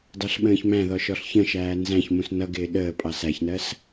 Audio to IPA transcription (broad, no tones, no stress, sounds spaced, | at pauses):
d ɑ ɬ ɓ ə̃ː ç m æ̃ ð ɔ ʃ ɔ ɬ ç ə̃ ʃ æː n z æ̃ ç m ũ s n ʌ ɡ ɪː ɗ əː pʼ ɑ s æ ç n ɜ s